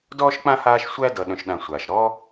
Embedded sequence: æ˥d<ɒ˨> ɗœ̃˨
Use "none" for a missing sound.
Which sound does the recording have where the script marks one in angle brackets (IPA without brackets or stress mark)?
ʌ˨